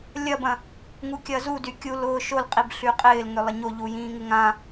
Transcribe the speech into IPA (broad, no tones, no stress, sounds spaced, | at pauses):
lʲ ɐ b ɐ̃ | ŋ u kʲ ɐ z u d y kʲ u l ʊː ʃ o l qʼ i b ɬ y qʼ ɪː l ŋ ʏ lˠ ɪ ɲ o ʎ u j ĩː ŋ ɪ ŋ ã